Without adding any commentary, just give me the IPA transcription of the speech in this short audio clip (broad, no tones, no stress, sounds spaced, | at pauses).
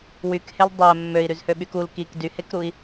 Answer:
w y k h e l dˤ æ mː ø i̯ ɾ y z h ø ɓ y k u l k i k d y h e k ɾ u i̯